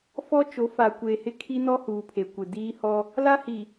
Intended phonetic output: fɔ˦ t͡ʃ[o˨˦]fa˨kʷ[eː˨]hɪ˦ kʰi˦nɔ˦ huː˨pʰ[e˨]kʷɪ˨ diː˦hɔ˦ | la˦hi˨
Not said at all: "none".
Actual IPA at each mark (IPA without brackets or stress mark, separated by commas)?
o˨˦, eː˨, e˨